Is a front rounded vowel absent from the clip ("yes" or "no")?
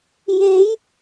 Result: yes